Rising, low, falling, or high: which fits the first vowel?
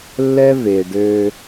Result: high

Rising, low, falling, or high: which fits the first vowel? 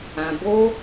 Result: low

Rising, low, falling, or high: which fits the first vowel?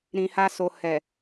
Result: low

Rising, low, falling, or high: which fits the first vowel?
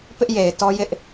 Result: high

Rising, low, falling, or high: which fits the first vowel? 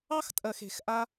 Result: high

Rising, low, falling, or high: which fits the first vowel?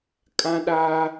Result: high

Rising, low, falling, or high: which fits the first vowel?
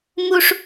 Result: high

